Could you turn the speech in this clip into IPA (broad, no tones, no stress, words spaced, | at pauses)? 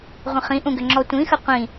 ʁʷə̃χĩʔũɡʏ ŋ͡ǁɔtʷĩxə qʷĩ